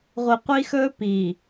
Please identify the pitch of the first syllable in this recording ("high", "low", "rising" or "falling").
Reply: low